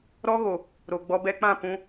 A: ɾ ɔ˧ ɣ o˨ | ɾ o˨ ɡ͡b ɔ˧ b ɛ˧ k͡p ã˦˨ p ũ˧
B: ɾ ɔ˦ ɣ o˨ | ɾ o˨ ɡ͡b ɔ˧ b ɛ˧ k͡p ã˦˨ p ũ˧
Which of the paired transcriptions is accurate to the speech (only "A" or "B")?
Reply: B